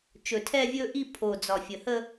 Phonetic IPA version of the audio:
t͡ʃ ɵ˨˩ tʰ ɛ˥˧ vʲ ɵ˥˧ ʔ i˥˧ pʰ o˨˩ d͡z ɒ˨˩ fʲ ə˨˩ h ə˥˧

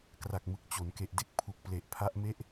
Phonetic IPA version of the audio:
k r a˨˩ k̚ m ɯ˨˩ k̚ t͡ɕ o˩˦ n k e˨˩ ʔ d e˥˩ k̚ pʰ u˨˩ k̚ p l e˨˩ ʔ pʰ a˦˥ ʔ m e˦˥ ʔ

